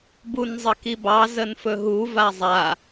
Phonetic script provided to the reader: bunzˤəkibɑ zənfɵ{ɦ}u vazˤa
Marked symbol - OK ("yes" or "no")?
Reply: yes